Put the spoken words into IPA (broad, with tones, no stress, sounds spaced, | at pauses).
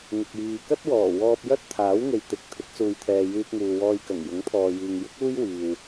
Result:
ŋ ɪ˨ k̚ j iː˨ k ɐ˥ t̚ w ɔː˨˩ w ɔː˧ p̚ j ɐ˥ t̚ t̪ʰ aː˨˥ w ŋ e˨ j t̪ ɪ˨ k̚ t̪ʰ ɪ˨˥ k̚ s uː˨ j t̪ʰ ɛː˨ j yː˧ p̚ ŋ uː˨ w ɔː˧ j k ɐ˨˩ ŋ j ʊ˨˥ ŋ t̪ʰ ɔː˨ j iː˨ ŋ j ɪ˥ k̚ uː˥ j w iː˨ w